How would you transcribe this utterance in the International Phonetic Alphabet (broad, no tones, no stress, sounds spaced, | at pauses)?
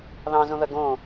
ð ɑ̃ z õ ð ɐ ɡ õ